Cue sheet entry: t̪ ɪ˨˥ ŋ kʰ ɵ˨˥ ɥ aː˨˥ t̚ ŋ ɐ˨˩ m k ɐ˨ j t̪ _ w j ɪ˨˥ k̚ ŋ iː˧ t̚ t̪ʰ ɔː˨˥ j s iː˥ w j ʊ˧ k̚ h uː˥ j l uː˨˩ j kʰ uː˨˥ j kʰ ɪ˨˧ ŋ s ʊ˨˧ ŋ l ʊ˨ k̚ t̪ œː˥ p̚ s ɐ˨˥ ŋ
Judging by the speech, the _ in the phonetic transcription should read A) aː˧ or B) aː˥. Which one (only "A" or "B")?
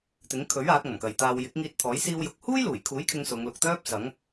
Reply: A